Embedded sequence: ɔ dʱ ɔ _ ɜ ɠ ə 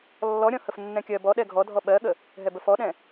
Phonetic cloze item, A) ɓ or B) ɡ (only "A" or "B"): A